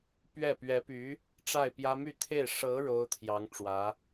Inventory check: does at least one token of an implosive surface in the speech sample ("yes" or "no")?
no